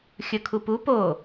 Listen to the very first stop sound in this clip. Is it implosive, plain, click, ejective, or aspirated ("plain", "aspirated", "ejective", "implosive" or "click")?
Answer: aspirated